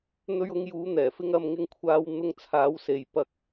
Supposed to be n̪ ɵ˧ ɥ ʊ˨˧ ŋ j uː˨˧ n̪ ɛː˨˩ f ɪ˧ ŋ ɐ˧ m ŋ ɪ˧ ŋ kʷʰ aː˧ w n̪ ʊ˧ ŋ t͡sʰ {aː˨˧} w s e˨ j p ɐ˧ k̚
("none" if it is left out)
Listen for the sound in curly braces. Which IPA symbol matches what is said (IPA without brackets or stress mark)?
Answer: aː˨˧